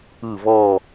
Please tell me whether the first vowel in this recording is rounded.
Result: no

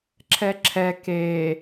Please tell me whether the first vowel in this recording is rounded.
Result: no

